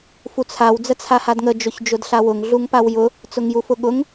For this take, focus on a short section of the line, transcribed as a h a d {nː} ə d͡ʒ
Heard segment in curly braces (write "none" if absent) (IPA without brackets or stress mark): ŋ